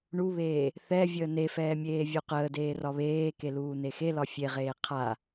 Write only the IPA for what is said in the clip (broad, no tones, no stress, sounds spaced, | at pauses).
ɳ u β eː | θ ɛ vʲ əː n e f ɛː mʲ eː vʲ u q əː d eː r ɒ β eː k e l uː n e x e l ɒ fʲ e ʁ eː qʰ a